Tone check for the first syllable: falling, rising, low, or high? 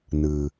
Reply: low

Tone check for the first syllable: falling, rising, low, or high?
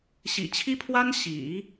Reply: low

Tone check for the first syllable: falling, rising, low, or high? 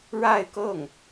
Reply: falling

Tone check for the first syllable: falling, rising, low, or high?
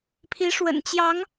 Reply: rising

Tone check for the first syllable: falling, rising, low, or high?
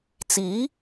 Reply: rising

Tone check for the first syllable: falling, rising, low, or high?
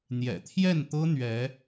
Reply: low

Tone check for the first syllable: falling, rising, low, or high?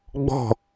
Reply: falling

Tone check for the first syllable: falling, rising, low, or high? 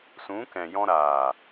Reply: rising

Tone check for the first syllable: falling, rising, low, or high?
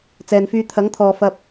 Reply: low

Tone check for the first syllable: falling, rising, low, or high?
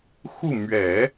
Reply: falling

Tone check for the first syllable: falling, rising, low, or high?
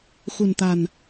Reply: low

